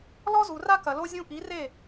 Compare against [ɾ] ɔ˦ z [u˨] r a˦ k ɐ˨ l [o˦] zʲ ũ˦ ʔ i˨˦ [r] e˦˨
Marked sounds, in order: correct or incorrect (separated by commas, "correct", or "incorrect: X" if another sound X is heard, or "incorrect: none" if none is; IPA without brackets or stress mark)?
incorrect: l, correct, correct, correct